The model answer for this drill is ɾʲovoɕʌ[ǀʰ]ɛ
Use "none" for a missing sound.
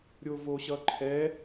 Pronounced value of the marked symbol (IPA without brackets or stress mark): ǃʰ